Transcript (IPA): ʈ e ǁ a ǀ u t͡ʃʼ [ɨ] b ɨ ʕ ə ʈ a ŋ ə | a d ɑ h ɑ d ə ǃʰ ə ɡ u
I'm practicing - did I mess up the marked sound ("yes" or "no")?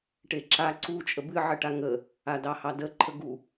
yes